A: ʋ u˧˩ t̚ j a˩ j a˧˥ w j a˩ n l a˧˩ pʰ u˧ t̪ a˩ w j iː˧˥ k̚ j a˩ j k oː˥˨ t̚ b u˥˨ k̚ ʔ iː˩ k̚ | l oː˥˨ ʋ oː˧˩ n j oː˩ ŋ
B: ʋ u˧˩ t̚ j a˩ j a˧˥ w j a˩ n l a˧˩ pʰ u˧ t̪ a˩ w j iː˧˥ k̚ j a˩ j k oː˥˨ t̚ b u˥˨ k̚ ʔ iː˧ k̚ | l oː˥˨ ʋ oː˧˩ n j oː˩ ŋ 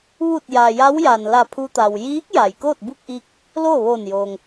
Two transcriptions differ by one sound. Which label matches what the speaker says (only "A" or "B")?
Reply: B